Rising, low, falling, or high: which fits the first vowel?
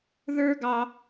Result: high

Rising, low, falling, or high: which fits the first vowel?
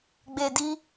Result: low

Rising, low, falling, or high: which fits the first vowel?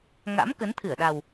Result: rising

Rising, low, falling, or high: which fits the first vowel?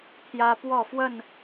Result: high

